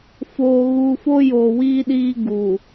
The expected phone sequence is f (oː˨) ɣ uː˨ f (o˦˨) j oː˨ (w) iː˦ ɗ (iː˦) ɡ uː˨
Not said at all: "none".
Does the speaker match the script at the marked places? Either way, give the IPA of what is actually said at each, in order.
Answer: oː˨, o˦, w, iː˦

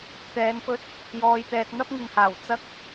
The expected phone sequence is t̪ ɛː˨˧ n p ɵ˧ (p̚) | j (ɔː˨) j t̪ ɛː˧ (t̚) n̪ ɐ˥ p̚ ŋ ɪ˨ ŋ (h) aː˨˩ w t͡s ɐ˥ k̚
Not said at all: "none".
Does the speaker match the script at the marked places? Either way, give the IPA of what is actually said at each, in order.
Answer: t̚, ɔː˧, t̚, h

